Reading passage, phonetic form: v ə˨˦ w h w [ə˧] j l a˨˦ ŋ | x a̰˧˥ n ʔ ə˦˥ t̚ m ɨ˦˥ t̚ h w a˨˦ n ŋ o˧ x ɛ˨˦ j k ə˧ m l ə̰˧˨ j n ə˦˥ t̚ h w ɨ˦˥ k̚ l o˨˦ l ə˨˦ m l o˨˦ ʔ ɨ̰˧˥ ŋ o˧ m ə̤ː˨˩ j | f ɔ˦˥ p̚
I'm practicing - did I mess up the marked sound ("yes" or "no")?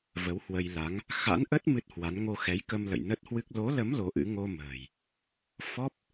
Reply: no